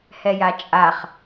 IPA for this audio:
h ɛ j a t͡ʃʼ a χ

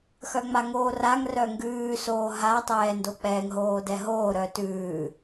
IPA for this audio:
x œ ŋ͡m a ŋ oː r a ŋ r œ ŋ ɡ ʉː s oː ɦ a tˤ ɛː n d o k͡p ɛː ŋ ɦ oː d ɛ ɦ oː ɾ œ t ʉː

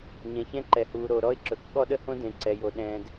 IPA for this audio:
ɲ ɛ̃˨ ç ɛ̃˦ ǃ ɛ˨ h uː˨ ɾ o˨ ɾ ɔ˦ ɪ̯ ǁ ɵ˨ k ɠ ɔ˦ ɗ ə˦ h õ˦ d ẽ˨ ǀ ɛ˨ j o˨ ɗ ɛ̃ː˨ d

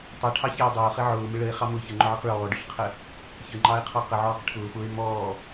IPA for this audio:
tˤ ʌ ʈʰ ɑ ç æ o̯ dˤ ɑ o̯ χ ɪ ʕ ʊː m ɪ ɭ ə e̯ χ ɑ m ʊː ç ə ŋ͡ǃ ʊ ʕ ʌ q ɭ ɔː ɖ ʊ ɬ qʰ ə | ç ə ŋ͡ǃ ɑ e̯ qʰ ɔ q ə ʕ ɔː q ʈʰ ʊː f ʊː e̯ m ɔː

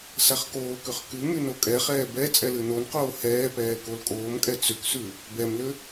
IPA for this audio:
s a χ k oː k ʏ χ k ʉ m y n o kʼ ɛ χ ɛː b ɛ t͡sʼ ɛ l ɨ n o n q oː h ɛː p ɛː k o l kʼ oː m kʼ ɛ t͡s ʏ k s ʉ | b ɛ m l ʏ

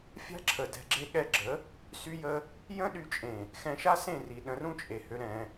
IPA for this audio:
fʲ a̤˦ ǁʰ ə˨ d ɛ̤˧ ɡ͡ǁ e˦ ɠ ɛ˦ ɡ͡ǁ ə˨˦ | s y˦ j ə˦ | j ə̃˦ ɗ y˧ t͡ʃʼ ẽ˨ | x ɛ̃˧ ʃ a˦ s ẽ˦˨ r i˨ ɗ ə̃˧ r ũ˦ t͡ʃʼ e˨ h ø˧ ɾ ɛ̃˧

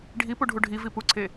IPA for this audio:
ɖʱ i p u ɖʱ u ɖʱ i v i p u ǀʰ e

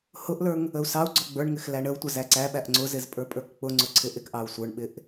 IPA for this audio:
h ʊ ʔ l ə˞ ŋ | ə u̯ s ɑ u̯ ɡ͡ǀ ɔ ɡ͡b ə˞ ɳ ŋ ɪ x l æ ɳ ə u̯ tʷ ə z æ ǀ æ ɓ æ ʔ ŋ͡ǀ ʊ z ɪ z pʼ ə˞ pʼ ə˞ k k͡p ʊ ŋ͡ǀ ʊ ǀʰ ɪ ʔ ɪ k ʔ ɑ u̯ sʷ ə˞ ɳ ɓ ɪ ʔ

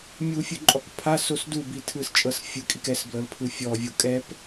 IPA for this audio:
mʲ u fʲ ɯ ǃʼ ɔ k pʰ a s o s d u b i tʰ ɯ s t͡ʃʼ ɤ s fʲ ɯ kʼ i k ɛ s b l ɤ l pʰ ɯ fʲ ɔ vʲ o kʼ ɛ p

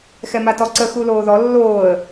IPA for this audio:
x ɛ m a t ɔ ǀ ə x u l oː ð ɔ lː oː ə̯

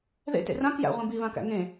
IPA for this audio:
ð ḛ t ḛ r ã k j æ̰ ʁʷ ĩ b i β ã k æ̰ ŋ ẽ

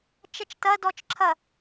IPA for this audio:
t͡ʃ ɐ t͡ʃ t ɐ d ɔ t͡ʃ ǁʰ ɐ

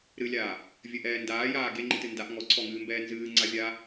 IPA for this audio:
ɾ ɨ lʲ aː | vʲ ɘ ʔ ɛː n d aː j aː ɡ e ŋ͡ǃ i t ɨ n d a ʔ ŋ ɔ ǀʰ ɔ ŋ ɨː m b ɛː n z ɨː ŋ͡ǀ a vʲ aː

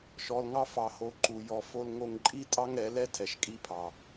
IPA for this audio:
ʃ ɔ˨ l ŋ ɑ˧ f ɑ˨ h o˨ ǃ u˨ j ɔ˨ f o˧ l ŋ o˧ ŋ ǃʼ i˦ tʼ ɑ˦ ŋ ɾ ɛ˨˦ l ɛ˦ tʰ ɛ˨ ʃ kʼ i˧ pʰ ɑ˨

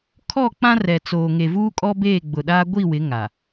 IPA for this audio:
kʰ ɔ˦˨ k͡p ã˦ r ɛ˨ t͡s oː˨ ŋ e˨ v uː˦ kʼ ɔ˦ b eː˦˨ ɡ͡b ʊ˨ ɗ aː˦ ɡʷ i˦˨ w ɪ˨˦ ŋ a˨

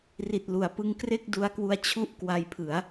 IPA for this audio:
r i˨˩ t̚ l u˩˦ a̯ p ɯ˧ ŋ k r e˥˩ k̚ d u˦˥ a̯ k w u˧ a̯ t͡ɕʰ u˥˩ ʔ k w a˧ j pʰ ɯ˩˦ a̯

